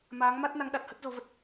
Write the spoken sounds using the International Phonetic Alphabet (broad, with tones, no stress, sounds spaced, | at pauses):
m aː˨˦ ŋ m a˦˥ t̚ n a˨˦ ŋ ɗ a˨˩ t̚ h ə˦˥ t̚ z o˨˦ v ə˨˩ t̚